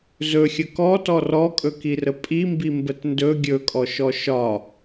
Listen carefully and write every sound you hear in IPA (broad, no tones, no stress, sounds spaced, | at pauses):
z ɵ xʲ ə k ɔ t ɔ r ɔ kʼ ɵ k i r ə pʼ i m b i m b ə t n d ɵ ɡʲ ɵ kʼ ɔ ʃ ɔ ʃ ɒ